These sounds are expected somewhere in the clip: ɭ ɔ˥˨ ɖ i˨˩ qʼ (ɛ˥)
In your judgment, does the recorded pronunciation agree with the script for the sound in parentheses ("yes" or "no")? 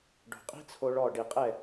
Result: no